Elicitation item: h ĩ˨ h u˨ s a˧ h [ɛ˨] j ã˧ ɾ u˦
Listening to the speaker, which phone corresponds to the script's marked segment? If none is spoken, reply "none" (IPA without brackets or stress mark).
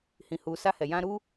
ɛ˨